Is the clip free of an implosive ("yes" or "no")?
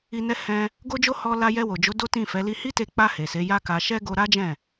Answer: yes